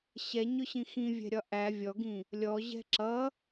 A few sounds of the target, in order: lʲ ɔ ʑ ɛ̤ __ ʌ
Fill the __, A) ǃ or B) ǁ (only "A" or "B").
B